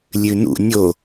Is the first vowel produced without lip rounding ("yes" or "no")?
no